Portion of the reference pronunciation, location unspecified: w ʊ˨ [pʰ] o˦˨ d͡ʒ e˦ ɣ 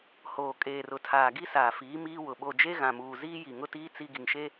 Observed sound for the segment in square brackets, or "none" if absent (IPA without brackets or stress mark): ɓ